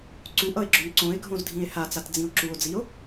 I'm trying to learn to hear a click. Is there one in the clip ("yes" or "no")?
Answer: yes